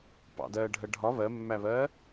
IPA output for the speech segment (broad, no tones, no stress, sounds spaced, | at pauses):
p ɑ̰ d ɜː ɖʱ ɜ ɖʱ ɒ β ɜ mː æ β ɜː